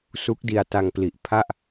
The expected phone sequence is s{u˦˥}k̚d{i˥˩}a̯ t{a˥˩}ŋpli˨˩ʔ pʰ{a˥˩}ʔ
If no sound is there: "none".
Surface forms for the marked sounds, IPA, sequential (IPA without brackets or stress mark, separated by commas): u˦˥, i˧, a˧, a˥˩